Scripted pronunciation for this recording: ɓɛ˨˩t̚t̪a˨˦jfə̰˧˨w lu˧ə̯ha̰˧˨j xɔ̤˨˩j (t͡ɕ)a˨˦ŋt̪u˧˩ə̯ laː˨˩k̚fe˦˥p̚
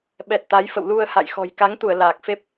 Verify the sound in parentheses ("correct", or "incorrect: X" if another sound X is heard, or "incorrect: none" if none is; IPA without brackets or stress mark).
incorrect: k